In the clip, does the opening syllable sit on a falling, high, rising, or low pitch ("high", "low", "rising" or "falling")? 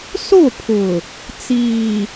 falling